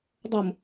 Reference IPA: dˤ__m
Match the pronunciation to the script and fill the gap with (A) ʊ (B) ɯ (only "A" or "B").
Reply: A